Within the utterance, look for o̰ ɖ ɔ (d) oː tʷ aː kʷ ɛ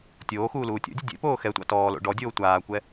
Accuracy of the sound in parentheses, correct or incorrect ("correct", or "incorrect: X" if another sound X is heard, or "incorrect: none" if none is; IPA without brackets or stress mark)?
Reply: incorrect: dʲ